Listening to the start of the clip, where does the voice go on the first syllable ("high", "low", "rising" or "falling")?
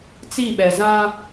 falling